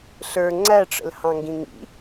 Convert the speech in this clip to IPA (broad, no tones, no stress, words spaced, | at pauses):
ɬə˞ ŋ͡ǀæʈ͡ʂə̰l hɑ̃ŋɡĩŋḭ